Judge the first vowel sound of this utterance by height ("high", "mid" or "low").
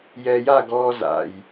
mid